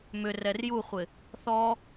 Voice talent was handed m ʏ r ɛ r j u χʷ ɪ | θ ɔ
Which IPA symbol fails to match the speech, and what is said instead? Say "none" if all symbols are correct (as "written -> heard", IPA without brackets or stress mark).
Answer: none